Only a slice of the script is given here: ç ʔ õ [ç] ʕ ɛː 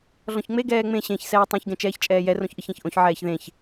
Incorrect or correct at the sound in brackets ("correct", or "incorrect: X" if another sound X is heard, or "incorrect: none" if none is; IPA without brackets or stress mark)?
correct